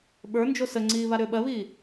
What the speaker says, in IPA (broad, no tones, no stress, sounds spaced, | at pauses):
ɓ ə˞ n d͡ʒ o s ə ŋ͡ǀ iː β a ɾ ʏː ɓ ɜ β iː